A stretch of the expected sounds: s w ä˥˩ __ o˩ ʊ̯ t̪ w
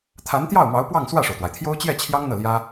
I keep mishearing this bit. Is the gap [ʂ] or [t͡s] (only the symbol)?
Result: ʂ